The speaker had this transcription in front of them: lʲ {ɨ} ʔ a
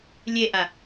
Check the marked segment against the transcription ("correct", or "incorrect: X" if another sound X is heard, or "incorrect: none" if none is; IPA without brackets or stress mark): incorrect: e